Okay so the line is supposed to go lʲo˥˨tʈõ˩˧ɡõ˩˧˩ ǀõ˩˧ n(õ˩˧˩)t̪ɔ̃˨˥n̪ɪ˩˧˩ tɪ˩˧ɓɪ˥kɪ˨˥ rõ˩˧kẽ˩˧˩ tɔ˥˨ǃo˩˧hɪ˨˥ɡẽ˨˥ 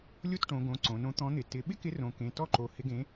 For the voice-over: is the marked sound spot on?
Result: no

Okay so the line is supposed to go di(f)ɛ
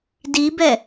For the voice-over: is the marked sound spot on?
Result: no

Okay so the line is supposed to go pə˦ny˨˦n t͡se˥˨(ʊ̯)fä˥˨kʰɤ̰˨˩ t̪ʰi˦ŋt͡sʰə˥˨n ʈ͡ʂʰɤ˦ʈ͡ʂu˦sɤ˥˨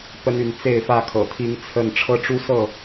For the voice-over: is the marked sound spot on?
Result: no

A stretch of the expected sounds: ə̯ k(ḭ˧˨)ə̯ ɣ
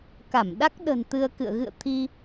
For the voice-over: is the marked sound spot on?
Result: no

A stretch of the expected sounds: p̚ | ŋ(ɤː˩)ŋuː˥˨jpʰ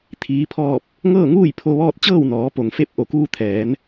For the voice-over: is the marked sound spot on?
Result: no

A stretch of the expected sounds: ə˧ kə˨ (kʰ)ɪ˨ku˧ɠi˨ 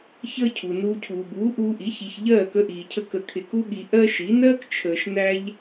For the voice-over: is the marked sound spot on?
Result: yes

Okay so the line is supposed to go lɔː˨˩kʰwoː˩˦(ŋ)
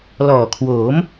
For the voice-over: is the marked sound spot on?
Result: no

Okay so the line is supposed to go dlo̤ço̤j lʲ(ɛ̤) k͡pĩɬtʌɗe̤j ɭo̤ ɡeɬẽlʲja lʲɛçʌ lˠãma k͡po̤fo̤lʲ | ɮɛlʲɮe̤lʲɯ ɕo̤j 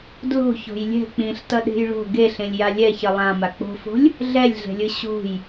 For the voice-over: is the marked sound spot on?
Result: yes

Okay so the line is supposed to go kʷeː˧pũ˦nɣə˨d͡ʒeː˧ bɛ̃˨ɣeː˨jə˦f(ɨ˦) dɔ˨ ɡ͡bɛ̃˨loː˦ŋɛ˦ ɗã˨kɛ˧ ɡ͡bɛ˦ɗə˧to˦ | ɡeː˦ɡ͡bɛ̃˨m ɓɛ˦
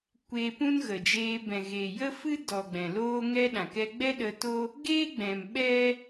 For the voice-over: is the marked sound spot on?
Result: yes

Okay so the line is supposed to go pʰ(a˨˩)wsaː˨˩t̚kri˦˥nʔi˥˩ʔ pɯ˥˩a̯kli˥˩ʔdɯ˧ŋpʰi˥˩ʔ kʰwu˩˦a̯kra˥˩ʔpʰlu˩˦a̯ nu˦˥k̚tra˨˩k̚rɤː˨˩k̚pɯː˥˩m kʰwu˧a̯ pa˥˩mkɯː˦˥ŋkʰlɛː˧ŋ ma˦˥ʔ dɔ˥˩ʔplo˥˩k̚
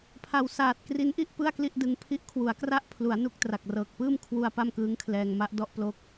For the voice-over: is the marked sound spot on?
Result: yes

